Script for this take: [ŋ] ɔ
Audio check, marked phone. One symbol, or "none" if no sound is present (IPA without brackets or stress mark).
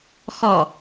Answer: x